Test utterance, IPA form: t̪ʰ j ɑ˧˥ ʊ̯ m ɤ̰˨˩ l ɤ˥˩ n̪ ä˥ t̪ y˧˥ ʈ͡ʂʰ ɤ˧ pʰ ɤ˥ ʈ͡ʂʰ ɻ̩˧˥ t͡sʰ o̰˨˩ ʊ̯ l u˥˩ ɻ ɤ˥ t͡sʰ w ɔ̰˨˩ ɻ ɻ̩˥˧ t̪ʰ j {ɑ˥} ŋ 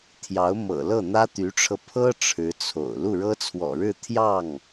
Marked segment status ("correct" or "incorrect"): incorrect